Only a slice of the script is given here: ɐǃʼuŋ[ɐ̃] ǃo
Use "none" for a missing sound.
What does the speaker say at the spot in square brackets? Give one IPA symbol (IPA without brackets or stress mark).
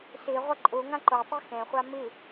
ã